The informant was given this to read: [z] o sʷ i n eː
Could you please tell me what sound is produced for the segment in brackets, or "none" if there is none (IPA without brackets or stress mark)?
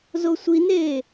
z